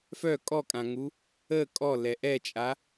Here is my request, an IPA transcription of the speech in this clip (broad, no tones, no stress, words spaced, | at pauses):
fœ kʼɔkʼãŋu | ə kʼɔlɛ ʔɛt͡ʃʼa